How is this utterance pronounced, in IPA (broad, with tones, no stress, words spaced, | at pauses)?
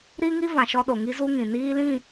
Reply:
ɾi˦ŋi˦ vã˨ʃɔ˦ɗo˨ ŋi˦zu˦ ŋĩ˨ niː˦lĩ˦˨